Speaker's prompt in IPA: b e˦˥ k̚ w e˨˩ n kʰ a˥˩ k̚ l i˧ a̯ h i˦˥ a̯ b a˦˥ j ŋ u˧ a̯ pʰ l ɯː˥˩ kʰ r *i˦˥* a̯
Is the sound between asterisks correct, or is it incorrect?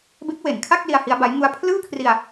incorrect